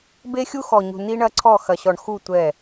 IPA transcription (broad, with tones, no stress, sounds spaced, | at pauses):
b e˦ xʲ u˦ x ɔ˨ ɲ ṳ˨ n i˦ ɳ ɐ˦ ǀʰ ɔ˦˨ x ɐ˨ ɕ ɔ˨ ɳ x u˦˨ tʷ ɛ˦˨